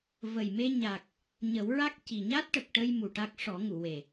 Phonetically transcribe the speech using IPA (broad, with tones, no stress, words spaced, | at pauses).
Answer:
və˨˩jme˧ɲa˨˩k̚ | ɲə˨˩˦wɹa˦˥k̚ ci˨˩ɲa˦˥t̚ʈə˨˩k̚ʈə˧j mu˨˩ʈa˦˥k̚ ʂɔ˨˩˦ŋu˨˩˨we˨˩